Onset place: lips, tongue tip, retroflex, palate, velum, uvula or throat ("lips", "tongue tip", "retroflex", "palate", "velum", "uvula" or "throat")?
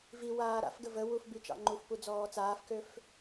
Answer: lips